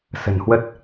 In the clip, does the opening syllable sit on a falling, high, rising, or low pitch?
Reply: low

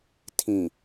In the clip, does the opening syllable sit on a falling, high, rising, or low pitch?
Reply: low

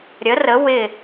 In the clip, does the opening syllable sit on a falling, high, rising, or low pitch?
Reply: rising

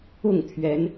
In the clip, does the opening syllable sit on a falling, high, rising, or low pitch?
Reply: falling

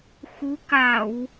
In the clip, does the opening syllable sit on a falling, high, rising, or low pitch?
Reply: rising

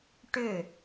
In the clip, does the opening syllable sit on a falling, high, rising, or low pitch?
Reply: falling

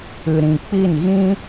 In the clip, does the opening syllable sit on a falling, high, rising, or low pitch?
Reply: low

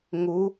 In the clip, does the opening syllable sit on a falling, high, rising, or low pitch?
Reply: rising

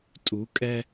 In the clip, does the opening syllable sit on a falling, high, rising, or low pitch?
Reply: rising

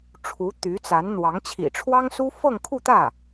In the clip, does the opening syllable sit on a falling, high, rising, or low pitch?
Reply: rising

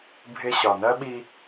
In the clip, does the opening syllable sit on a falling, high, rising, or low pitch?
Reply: high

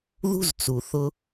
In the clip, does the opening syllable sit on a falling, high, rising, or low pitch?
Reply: high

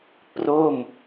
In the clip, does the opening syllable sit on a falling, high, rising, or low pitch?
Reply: falling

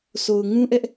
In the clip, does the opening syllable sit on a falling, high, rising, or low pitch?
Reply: low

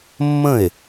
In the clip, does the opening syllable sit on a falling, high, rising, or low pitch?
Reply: falling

